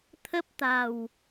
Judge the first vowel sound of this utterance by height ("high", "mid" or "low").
mid